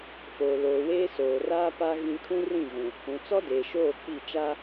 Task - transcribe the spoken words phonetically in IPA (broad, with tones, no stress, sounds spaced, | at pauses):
f oː˨ l oː˨ w eː˦ s oː˨ r aː˦ p a˦ ɣ ĩ˦ kʰ ũ˦ r ĩ˦˨ ɣ ũ˨ | ũ˨ t͡s ɔ˦ d eː˨ ʃ oː˦˨ k͡p i˦˨ t͡ʃ a˦